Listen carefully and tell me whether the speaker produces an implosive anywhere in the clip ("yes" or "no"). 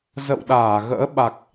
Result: yes